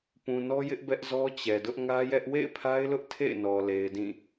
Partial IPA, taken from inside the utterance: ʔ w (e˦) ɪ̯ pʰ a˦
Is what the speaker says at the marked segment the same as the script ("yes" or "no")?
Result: no